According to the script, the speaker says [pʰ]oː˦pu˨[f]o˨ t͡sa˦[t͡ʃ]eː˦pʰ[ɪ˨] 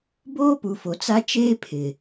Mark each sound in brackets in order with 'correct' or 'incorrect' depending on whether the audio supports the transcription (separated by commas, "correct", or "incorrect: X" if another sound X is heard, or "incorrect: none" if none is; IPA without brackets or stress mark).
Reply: incorrect: b, correct, correct, correct